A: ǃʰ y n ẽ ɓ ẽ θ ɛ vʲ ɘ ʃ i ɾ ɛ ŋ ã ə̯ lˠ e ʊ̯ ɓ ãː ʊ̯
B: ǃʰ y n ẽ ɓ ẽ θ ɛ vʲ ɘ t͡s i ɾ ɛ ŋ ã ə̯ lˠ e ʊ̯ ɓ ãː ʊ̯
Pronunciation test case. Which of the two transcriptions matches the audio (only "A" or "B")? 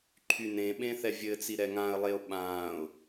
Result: B